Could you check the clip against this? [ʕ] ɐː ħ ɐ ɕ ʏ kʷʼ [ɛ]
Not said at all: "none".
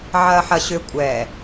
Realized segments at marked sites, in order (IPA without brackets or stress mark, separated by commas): ʕ, ɛ